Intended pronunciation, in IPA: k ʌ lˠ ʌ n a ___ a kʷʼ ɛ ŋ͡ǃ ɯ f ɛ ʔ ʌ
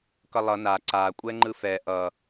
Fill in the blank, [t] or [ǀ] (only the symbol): ǀ